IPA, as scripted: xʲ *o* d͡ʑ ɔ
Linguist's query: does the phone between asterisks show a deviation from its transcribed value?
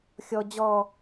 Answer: yes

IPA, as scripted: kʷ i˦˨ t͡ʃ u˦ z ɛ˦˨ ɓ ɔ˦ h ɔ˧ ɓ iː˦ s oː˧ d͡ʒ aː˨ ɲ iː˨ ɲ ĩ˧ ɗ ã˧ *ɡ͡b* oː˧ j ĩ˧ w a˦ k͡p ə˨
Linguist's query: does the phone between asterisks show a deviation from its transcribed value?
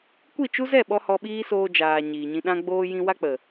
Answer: no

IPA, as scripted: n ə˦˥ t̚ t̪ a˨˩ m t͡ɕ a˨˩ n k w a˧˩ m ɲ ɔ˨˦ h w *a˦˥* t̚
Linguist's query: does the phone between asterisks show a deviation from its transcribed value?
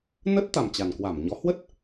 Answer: yes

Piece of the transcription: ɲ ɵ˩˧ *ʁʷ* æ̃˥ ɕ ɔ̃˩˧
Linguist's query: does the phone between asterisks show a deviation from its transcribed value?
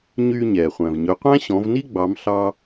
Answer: yes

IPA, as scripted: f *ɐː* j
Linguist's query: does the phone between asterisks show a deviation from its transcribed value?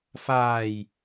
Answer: yes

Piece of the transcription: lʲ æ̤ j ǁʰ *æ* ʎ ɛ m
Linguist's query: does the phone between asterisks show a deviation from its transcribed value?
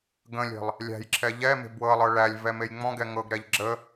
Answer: yes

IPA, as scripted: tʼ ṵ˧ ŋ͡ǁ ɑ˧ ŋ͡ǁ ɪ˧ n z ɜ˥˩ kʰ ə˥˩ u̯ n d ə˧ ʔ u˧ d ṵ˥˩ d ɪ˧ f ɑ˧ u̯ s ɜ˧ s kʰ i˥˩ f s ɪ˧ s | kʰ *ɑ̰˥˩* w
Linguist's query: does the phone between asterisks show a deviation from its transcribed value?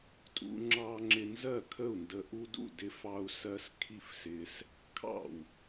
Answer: no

